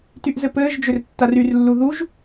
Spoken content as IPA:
tyʔzɘpɘːʒd͡ʒʏr tːaryrlːu ðuʒ

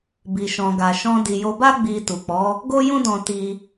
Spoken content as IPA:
bi˨ʃɔ̃˨ɡa˨ ʃɔ̃˧di˨jo˧ba˦ ɡ͡bi˧ tu˨k͡pɔ˨˦ | ɡo˦jũ˦dɔ̃˧ ti˧

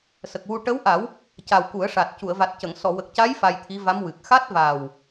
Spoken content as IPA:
sə˨˩k̚wu˧ ʈə˧˥wʔa˨˩˦w | ca˨˩wku˨˩˦ə̯ʂa˨˩t̚ cu˨˩˨ə̯va˨˩t̚cə˨˩˨ŋ sɔ˨˩˨wə˨˩k̚ca˧˥j fa˧jt̪ʰi˧˥va˧˥mwɨ˨˩k̚ xa˦˥t̚va˨˩w

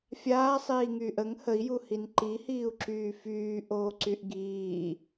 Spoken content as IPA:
fʲaːsˤiːŋyːʔ əŋ həi̯juhin ǃihiːu̯ǁyː fyːʔoːǀyʔ ɡiː

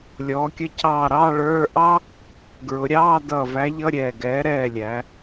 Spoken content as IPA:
lʲɔː˩˧kʲə˨˥cʰɑː˧˩ɾɑː˧˥˧ ɭə˞˧˥˧ ʔɑ˥ | ɡɹʊ˩˧ɾʲɑː˧˥˧ dʌː˧˩væ˨˥ʎʌ˧˥˧ ɾʲɛː˧˩ɡɛː˨˥ ɾɛː˧˩lʲæ˩˧

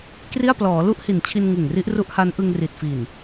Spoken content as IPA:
kri˥˩a̯ plɔː˩˦lu˦˥ʔ hi˨˩nt͡ɕʰi˧n ŋɯ˨˩ŋri˦˥ʔ ru˦˥ʔha˦˥nʔɯ˧ŋ ri˨˩t̚fi˨˩n

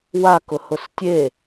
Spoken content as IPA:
wakʊ hʊstʲe

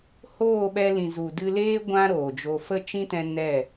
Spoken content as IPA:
hoː˦˨ɓɛ˧lĩ˨zu˨ dɨ˧leː˦ ɡʷã˦ɾoː˨d͡ʒo˧ fə˦t͡ʃĩ˦tɛ̃˧ nɛ˦˨

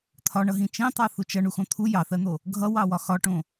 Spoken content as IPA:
t̪ʰɒɳʌɦĩ t͡ʃĩtˤɑ θut͡ʃʌ ɳuxõt̪ʰu jɑθɜn̪o | ɡʱʌwɑ wɒxɒʈõ

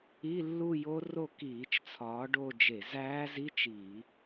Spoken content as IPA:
i˧˥˧lːu˥˧jo˦˥ro˥˧ kiː˧˩˧t͡ʃt͡sʰɒː˨˦ ɖo˥˧ d͡ʒe˧˩˧zæː˦˥zi˧˥˧t͡ʃ i˧˩˧

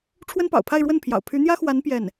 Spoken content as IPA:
ʈ͡ʂʰwə˥npɑ̰˨˩ʊ̯pʰa˥˧ɪ̯ɻwə˥˩n pʰjɑ̰˨˩ʊ̯ pʰy˧˥n̪jä˥xwa˧˥n pjɛ˥˩n

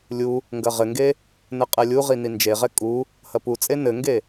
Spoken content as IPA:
lʲu | ŋɡɐʁɘŋɡe | nɘqʼɛlʲuʁi nind͡ʒeʁɛ kʼu | hɐput͡sʼe nɘŋɡe

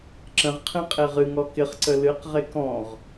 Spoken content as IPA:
ǁə̃ʁ qʰẽqʼeʁɨŋɔ kɪχ ǀəlɨqʁe kɔ̃ʁ

